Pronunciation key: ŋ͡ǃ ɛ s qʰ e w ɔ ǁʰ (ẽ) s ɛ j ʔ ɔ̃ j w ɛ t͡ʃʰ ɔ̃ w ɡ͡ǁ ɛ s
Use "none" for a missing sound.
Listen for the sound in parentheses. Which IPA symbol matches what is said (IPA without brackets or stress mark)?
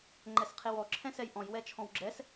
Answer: ɛ̃